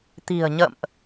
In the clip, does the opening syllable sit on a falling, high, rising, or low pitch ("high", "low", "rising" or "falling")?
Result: low